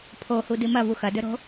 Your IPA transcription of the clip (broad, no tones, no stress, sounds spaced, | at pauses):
pʰ o h u d ɨ m ɐ v u x ɐ d ɵ ɾ o̤